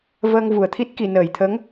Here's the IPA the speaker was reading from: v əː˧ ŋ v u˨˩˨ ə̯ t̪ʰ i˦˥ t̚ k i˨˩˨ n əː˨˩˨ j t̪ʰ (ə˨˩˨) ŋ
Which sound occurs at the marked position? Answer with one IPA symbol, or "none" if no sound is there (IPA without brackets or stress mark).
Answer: ə˧˥